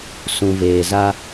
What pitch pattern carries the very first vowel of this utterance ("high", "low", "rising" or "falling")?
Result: low